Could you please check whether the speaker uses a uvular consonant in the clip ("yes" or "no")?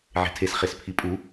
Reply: yes